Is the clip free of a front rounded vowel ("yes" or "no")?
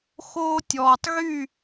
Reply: no